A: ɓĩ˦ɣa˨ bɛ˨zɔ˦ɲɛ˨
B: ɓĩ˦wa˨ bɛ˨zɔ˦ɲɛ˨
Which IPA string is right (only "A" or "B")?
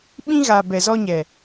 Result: A